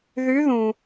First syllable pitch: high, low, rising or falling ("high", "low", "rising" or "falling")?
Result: rising